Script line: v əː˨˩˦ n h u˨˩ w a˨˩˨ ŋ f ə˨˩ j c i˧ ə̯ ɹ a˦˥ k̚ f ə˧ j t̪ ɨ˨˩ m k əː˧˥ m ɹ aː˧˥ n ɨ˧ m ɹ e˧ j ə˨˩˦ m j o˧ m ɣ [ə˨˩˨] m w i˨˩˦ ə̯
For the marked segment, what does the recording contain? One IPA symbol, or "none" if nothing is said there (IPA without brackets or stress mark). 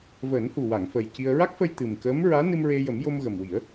ə˨˩